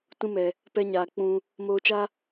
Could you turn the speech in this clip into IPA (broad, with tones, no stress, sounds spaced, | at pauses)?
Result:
t ũ˧ m ɛ˨ | p ɛ˧ ɲ aː˨ k͡p ũ˧ | m oː˧ t͡ʃ a˦